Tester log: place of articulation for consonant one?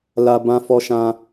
alveolar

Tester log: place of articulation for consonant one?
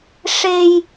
retroflex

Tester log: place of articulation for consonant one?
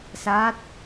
alveolar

